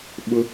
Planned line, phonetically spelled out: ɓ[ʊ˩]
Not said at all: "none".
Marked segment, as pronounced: ʊ˧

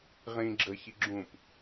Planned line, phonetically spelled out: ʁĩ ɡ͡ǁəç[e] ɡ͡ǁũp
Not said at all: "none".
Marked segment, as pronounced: i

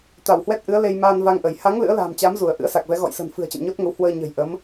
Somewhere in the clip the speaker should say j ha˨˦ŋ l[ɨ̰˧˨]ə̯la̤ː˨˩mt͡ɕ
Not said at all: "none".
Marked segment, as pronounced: ɨ̰˧˥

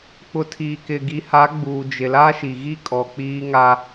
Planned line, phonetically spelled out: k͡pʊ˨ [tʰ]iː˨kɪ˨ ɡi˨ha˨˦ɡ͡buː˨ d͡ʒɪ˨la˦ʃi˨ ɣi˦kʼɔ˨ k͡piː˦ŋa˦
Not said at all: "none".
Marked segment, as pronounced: tʰ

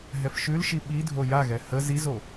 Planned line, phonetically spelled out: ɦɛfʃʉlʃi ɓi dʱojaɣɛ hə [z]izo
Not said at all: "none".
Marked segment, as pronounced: z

